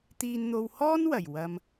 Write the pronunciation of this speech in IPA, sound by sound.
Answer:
t̪iː˧nn̪o˧whɔː˥nwɐ˨˩j wɐ˧m

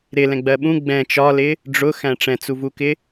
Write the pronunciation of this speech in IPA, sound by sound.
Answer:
ɾɪlɛ̃ɡ͡bɜ ɓũ ɡ͡bɛ̃ t͡ʃɒlɪ | ɖ͡ʐʊxæ̃ ʈ͡ʂɛ̃t͡suvukɪ

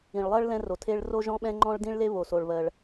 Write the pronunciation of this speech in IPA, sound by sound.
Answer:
ĩ˩ɭlˠɜ˥ɭ lɛ̃˥ro˩tʰe˥ɭ ro˥ʒɔ̃˥ɓɛ̃˥ ŋ͡ǃɔ̃˥ɭdĩ˥ɭle˥ βo˩so˩ɭβɜ˩ɭ

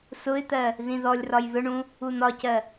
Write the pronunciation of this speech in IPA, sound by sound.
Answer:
sʊɪ̯t̪ɜ | ðĩðɔlʲrɒj ðʊɳũ | unɒcɜ

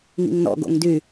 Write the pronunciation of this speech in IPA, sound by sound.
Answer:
ŋḭŋnɔ̰ ɡo̰ŋdy

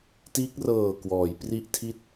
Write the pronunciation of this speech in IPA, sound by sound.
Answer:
tiː˦˥k̚rɤː˨˩ kwɔː˩˦j pri˥˩ʔtʰi˥˩t̚

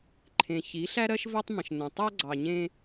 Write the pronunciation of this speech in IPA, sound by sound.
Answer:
ǃʰẽ˨çi˨˦ɬæ˦ɾɜ˦ʃ vɜ˦tˤmə̃˨ʃnə̃˨ tˤæ˦ɡ͡ǀɑ˨ɲẽ˦

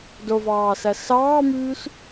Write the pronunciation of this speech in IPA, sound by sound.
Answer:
dovɑːsæ sɑːmyːs

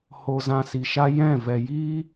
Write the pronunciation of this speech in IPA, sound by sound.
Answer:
ho˧zã˧si˨ʃa˦ jɛ̃˦˨ vɛ˨jiː˦

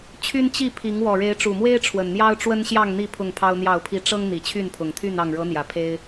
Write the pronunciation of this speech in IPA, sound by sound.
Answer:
t͡ɕʰy˦n t͡ɕi˥˨pʰi˨˦ŋ wɔ˨˩ɻe˨˦ɪ̯ʈ͡ʂu˨˩mwe˦ɪ̯ ʈ͡ʂʰwə˨˩nn̪jɑ˦ʊ̯ ʈ͡ʂwə˦nɕjɑ˥˨ŋn̪i˥˨ pʰʊ˥˨ŋpʰɑ˦ʊ̯n̪jɑ˥˨ʊ̯pʰi˦ ʈ͡ʂɤ˦ŋ n̪i˨˩t͡ɕʰy˥˨npʰʊ˨˩ŋt̪ʰy˥˨n ɑ˥˨ŋ ɻɤ˨˦n̪jä˨˩ pʰe˦ɪ̯

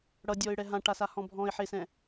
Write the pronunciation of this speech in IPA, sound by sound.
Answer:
ɽʌdʲɔɪ̯ɽɛ ɦãʈasahɔ̃ bʱɔ̃ɪ̯ħesɛ̃

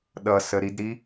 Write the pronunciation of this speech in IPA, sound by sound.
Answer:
ɗʌsəɾidɾi

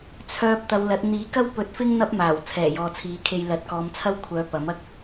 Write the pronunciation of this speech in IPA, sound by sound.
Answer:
t͡sʰœː˧p̚ t̪ɐ˨˧wlɐ˨˥t̚ n̪iː˨˥kɐ˥wpɵ˨˥t̚fɪ˥ŋ n̪ɐ˥p̚maː˨˩w t͡sʰɛː˨˩jɔː˨t͡sʰiː˨˥kʰe˧j lɐ˨˥t̚kɔː˨˧mt͡sʰɐ˥wkʷʰœː˨˧ pɐ˨˥mɐ˥k̚

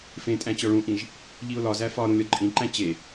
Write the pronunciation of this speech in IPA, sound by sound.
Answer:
fẽtʼæ̃ t͡ɕɒɭũʔĩʒ | ʎiʊ̯lɒzæ fɒ ɾũlʲɒǃʼĩǃæ̃ t͡ɕe

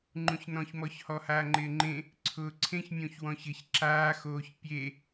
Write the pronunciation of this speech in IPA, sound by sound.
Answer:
ŋ͡ǃũçnɔ̃çmɔç hɔhaːŋ͡ǃɪːŋ͡ǃẽ | ǀʰʊːǀʰẽçmʲõç wɔ̃çɪç ǁaːxoːç pʲe

